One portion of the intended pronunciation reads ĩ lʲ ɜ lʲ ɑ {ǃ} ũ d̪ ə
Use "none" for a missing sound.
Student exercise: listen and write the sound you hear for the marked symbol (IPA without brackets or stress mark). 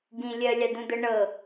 d̪